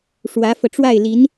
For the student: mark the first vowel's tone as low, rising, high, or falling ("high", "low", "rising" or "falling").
rising